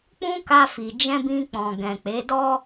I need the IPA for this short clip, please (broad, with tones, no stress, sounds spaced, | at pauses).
k͡p ũ˦ k a˧ f i˨ d͡ʒ ɛ̃˧ b ĩ˧ k͡p ɔ̃˨ ɡ ɛ̃˨ k͡p e˨˦ d ɔ˦